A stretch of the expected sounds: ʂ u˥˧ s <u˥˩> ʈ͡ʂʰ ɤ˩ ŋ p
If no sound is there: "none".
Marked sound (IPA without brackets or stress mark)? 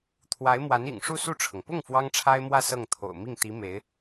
u˥˩